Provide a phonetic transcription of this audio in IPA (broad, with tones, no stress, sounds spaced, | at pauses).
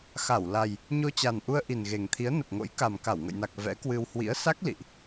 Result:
x a˧˩ w l a˨˩ j | ɲ o˧ t͡ɕ a˨˩ n ʔ u˧ ə̯ ʔ i˨˩ n ɣ e˨˩ ŋ t̪ʰ i˨˦ ə̯ n ə˨˩ p̚ ŋ o̰˧˥ j k a˨˩ m k a˧˩ w ŋ ə̰˧˨ j n a˨˩ k̚ v ɛ̰˧˥ k w ɨ˧ w h w ḭ˧˥ ə̯ s a˦˥ k̚ l ḭ˧˨ ʔ